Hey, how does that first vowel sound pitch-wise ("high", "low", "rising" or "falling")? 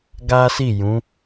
high